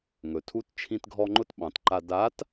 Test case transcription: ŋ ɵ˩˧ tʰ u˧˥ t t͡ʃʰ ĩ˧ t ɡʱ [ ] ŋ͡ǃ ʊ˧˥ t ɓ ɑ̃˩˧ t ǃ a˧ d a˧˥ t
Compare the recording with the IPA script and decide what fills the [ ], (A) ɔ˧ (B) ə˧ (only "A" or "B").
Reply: A